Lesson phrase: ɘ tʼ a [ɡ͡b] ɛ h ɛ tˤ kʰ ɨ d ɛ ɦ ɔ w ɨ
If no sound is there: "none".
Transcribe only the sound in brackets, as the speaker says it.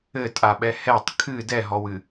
ɓ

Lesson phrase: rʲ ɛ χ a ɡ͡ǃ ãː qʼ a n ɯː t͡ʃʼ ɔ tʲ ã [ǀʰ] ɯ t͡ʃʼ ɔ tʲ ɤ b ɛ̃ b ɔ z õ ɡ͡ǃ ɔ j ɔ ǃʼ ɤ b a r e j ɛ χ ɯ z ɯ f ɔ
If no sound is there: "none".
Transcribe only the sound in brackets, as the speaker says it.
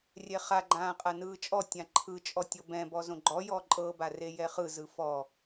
ǃʰ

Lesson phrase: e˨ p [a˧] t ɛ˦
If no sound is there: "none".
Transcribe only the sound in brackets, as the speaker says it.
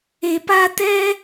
a˧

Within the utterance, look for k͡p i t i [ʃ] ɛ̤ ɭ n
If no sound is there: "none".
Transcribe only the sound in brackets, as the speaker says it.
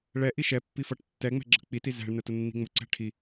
z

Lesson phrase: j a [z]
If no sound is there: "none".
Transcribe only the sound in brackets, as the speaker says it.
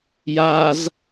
z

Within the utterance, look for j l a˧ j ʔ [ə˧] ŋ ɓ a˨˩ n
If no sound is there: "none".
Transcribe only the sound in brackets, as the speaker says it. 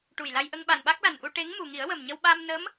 ə˧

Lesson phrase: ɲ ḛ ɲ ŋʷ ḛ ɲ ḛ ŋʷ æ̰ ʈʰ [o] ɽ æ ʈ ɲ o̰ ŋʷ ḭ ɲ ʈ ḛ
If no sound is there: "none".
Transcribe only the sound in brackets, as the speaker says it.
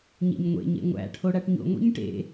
o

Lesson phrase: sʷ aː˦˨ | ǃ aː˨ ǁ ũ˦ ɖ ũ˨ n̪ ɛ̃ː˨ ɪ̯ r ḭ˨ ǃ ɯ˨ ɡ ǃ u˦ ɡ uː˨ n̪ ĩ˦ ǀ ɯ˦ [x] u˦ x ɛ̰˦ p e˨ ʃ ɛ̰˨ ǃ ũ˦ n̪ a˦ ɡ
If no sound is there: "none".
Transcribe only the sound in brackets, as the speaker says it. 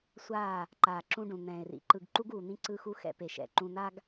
x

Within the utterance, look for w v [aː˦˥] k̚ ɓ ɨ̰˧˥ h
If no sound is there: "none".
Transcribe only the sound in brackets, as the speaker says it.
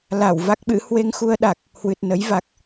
a˦˥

